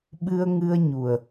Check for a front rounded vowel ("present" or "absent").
absent